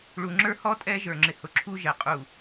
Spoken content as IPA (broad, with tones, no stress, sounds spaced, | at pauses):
ɭ u˨ ŋ͡ǁ ə˞˦ h ɔ˦ tʼ ɛ˦ ʒ ə˞˨ ŋ͡ǁ ɪ˨ h ʊ˨ ǁʰ u˦ ʒ ɛ˨ qʼ u˦˨